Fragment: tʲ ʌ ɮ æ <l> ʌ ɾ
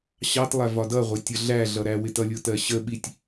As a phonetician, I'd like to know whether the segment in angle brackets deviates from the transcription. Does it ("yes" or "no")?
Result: yes